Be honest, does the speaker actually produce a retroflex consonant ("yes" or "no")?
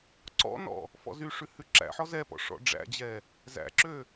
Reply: yes